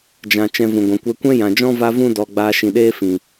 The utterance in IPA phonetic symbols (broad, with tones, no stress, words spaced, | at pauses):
d͡ʒã˨ t͡ʃɛ̃˧vũ˨ɡʷɛ̃˨kʷɛ˧ kʷɛ̃˦jã˨d͡ʒɔ̃˦ va˦vũ˦ dɔ˨ ɡ͡baː˧ʃĩ˨ɗeː˦ fĩ˨